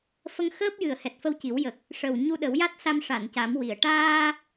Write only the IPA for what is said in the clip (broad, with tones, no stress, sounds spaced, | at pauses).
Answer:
f ə˧ ŋ x əː˦˥ p̚ j ɨ˨˩ ə̯ h ɛ˨˩ t̚ f ə˧ w c i˨˩˦ w j ə˨˩ k̚ | ʂ ə˨˩ w ɲ u˧ ɗ ə˨˩˦ w j a˦˥ t̚ s a˧ m ʂ a˨˩˨ n c a˨˩˦ m w i˨˩ ə̯ ʈ aː˧